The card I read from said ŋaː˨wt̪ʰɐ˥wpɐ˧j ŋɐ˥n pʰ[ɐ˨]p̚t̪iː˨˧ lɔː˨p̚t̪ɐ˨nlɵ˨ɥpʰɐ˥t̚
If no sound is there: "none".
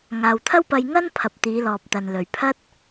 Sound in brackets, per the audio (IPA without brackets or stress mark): ɐ˨